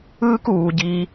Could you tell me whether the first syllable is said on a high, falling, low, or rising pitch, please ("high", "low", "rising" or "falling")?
high